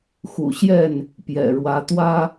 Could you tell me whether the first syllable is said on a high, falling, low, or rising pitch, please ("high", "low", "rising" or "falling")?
low